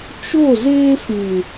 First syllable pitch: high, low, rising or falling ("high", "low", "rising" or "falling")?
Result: falling